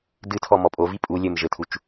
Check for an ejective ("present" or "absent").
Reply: present